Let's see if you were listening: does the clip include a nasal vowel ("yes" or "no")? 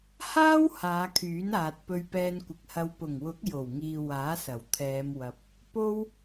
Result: no